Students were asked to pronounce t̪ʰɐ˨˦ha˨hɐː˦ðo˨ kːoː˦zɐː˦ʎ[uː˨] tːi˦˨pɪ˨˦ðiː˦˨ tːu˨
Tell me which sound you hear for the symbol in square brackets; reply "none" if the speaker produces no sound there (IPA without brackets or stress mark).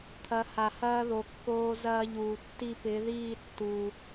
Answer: uː˨